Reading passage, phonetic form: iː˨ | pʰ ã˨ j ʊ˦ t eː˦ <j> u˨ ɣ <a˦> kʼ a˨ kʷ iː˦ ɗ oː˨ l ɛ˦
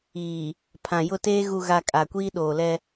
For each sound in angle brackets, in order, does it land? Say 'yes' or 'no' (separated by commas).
no, no